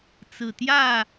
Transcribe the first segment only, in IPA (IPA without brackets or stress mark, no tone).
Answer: t͡s